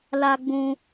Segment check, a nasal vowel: present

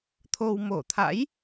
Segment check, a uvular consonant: absent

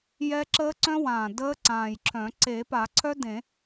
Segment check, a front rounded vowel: present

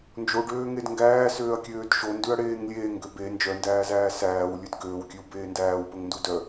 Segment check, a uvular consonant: absent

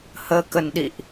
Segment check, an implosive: present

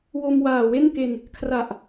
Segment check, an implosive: absent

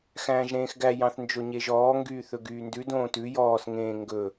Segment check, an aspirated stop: absent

